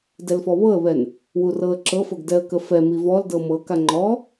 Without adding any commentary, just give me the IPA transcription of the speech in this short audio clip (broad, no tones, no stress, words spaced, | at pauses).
dɛlfɔβɤə̯βɛn | wurɤə̯ǁɤfɤɡ dɛə̯kəfɛmi vɔldɤ mɤka ŋ͡ǃɔ